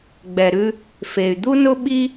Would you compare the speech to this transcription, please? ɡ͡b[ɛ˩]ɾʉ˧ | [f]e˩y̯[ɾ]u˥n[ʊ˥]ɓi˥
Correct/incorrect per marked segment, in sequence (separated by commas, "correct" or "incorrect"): correct, correct, incorrect, correct